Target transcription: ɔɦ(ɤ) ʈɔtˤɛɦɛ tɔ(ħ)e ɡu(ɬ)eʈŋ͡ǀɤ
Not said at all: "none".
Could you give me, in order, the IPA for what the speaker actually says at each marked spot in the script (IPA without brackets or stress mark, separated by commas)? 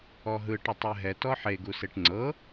ɯ, ħ, s